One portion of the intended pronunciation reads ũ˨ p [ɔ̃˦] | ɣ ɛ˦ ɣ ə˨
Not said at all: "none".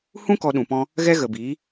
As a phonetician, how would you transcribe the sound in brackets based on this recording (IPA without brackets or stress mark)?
ɔ̃˦